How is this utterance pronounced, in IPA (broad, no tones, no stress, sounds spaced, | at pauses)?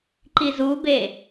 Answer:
ǃ i z u b e